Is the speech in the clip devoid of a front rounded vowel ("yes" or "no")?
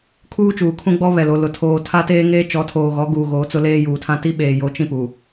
yes